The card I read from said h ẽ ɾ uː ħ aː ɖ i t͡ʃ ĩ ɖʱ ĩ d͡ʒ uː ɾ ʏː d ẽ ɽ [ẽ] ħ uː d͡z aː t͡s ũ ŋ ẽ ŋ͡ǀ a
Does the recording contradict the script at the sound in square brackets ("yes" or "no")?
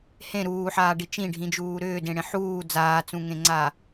no